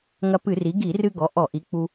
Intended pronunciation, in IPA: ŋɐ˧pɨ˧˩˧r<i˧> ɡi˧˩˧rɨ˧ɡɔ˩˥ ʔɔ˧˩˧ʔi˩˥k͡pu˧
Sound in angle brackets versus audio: incorrect: i˩˥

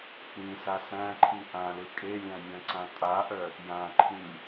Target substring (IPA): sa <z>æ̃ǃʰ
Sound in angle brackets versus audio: incorrect: s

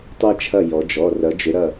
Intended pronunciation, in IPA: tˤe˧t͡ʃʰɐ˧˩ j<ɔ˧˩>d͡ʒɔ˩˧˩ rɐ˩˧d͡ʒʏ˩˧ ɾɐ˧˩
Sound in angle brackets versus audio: incorrect: ɔ˩˧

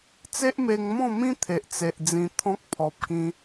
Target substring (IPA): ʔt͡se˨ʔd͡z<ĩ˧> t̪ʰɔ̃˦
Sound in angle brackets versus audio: correct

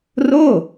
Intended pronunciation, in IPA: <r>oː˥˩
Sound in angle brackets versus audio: correct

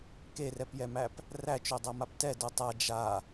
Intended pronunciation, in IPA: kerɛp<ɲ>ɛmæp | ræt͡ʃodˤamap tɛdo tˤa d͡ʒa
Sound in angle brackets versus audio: incorrect: j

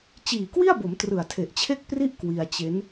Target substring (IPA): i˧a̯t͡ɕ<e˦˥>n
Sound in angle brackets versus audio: correct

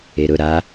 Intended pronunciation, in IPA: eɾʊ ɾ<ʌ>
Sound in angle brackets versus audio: incorrect: a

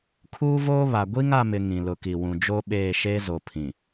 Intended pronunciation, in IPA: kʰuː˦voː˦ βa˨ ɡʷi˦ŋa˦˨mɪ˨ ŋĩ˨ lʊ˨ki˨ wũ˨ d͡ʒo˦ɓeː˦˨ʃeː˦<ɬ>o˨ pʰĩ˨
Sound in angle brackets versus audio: incorrect: z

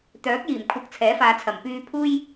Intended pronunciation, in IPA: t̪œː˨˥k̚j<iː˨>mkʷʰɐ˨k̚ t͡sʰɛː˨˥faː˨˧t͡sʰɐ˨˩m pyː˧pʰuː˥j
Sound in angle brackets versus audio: incorrect: iː˨˩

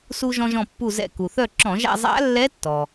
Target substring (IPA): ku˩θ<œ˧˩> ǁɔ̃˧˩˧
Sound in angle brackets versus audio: correct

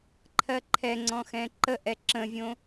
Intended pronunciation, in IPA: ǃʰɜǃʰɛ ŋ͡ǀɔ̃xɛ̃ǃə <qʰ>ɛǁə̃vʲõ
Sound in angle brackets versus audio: incorrect: ʔ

